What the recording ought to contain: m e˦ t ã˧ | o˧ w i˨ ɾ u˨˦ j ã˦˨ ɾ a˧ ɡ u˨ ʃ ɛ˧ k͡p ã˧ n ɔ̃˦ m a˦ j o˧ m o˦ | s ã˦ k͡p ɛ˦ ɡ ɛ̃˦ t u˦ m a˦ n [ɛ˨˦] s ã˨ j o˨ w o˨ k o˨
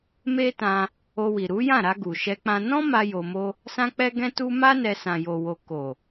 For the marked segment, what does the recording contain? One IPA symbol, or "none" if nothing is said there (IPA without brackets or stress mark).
ɛ˧